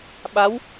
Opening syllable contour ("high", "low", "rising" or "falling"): rising